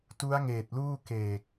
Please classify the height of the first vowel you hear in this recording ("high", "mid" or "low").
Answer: high